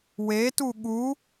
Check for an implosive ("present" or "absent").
present